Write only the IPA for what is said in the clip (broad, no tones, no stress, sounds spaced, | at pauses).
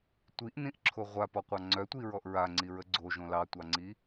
tʷ i ʔ n ĩ ʔ ǁʰ o ʁʷ a p ɔ qʷ ɑ ŋ͡ǀ œ tʷ i ɹ ɔ ʔ ɹ a ŋ͡ǀ i ɹ ə ɡ͡ǀ o ʒ õ l ɑ tʷ ɑ ŋ͡ǀ i